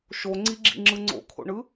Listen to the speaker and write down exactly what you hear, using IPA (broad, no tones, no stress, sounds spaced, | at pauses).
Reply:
ʃ o ŋ͡ǀ i ɡ͡ǁ ḭ ŋ͡ǁ ɯ ŋ͡ǀ o̰ kʰ o̰ ɳ ɯ